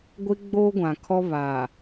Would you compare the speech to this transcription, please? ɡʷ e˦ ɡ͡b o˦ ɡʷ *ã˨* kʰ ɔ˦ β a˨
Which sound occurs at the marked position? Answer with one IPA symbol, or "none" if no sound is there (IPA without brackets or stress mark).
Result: ã˨